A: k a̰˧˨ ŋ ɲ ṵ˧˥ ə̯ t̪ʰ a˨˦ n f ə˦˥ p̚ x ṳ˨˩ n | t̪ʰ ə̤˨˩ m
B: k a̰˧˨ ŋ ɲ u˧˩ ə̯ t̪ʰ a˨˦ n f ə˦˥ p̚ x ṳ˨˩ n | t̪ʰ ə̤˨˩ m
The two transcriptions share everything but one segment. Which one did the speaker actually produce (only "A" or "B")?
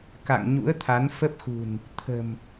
A